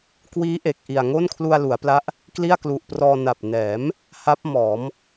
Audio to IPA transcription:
kwiː˦˥ ʔe˨˩k̚ ʔi˨˩a̯ ŋo˥˩nkʰlu˧a̯lu˩˦a̯pla˦˥ʔ | kli˥˩a̯klu˨˩ʔprɔː˧ na˨˩p̚nɛː˩˦m | ha˦˥p̚mɔː˩˦m

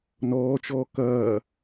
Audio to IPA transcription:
nɔːt͡ʃɔː kɐː

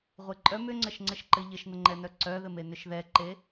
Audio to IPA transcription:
ʁʷeǃʼœm ʏŋ͡ǀəʃŋ͡ǀɘʃǃɘ ʎɘʃn̪əŋ͡ǃɛnœ ǀœðɘm enʏʃðɛǃe

